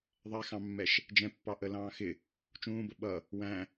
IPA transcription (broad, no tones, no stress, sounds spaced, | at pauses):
ðˤ ɛ x ɑ̃ mː ɛ ʃ | d͡ʒ ɛ̃ pː ɑ ʔ ə l ɑ̃ː x ɪ | t͡ʃ ũː b ə ɓ ʌ | w æ̃